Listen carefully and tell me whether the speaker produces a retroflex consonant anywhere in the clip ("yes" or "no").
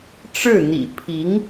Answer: yes